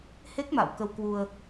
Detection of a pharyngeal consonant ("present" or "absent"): absent